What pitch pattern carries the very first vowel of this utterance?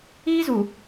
high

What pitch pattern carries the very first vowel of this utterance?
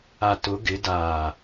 low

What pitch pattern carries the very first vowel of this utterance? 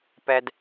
low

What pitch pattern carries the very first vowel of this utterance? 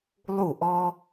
falling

